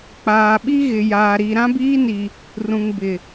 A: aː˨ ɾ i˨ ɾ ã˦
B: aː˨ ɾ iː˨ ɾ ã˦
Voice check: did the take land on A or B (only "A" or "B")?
A